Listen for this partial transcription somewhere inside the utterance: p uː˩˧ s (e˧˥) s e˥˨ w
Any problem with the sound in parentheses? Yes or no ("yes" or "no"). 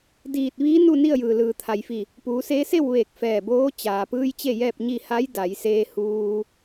yes